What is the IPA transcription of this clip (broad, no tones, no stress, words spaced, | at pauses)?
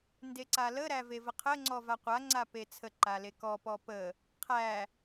ndeǀaləɾæ vevəqʰəŋ͡ǀɔ vaqʷaŋ͡ǀa pet͡sʰəǃa lekɔpɔ pə | qʰæ